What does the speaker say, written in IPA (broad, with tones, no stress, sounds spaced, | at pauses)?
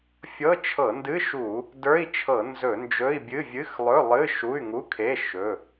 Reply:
fʲ ɤ˧˥˧ t͡ʃʰ ɤ˧˩˧ n d ɨ˧˥˧ ʃ u˧˩˧ | d ə˞˧˥˧ i̯ t͡ʃʰ ɤ˧˩˧ n z ɵ˧˩˧ n d͡ʒ ɵ˧˥˧ i̯ bʲ ɨ˧˥˧ vʲ ɨ˧˥˧ x lˠ ɵ˧˥˧ lˠ ɨ˧˥˧ ʃ u˧˥˧ y̯ ŋ u˧˥˧ kʰ e˧˥˧ ʃ ɵ˧˥˧